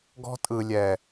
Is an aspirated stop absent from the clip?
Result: yes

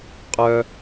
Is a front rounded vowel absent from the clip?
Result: no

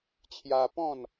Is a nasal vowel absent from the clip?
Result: no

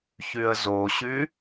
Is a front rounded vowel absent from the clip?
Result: no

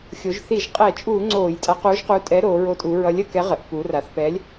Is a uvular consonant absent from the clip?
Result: no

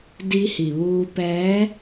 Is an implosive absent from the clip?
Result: yes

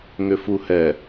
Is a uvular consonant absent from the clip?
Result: yes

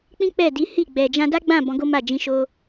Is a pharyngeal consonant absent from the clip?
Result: yes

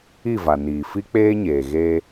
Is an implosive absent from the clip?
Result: yes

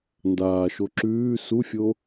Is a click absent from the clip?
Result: no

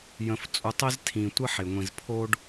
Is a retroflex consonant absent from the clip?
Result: no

